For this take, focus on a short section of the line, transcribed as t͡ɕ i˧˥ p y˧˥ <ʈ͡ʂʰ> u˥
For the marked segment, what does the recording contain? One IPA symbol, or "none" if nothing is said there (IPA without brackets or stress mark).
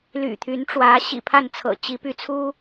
t͡sʰ